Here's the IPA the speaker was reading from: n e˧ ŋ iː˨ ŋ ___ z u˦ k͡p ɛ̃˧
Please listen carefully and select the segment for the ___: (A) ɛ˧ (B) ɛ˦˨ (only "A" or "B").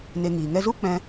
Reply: A